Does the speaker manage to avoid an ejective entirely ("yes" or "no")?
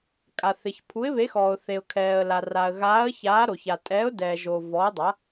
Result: no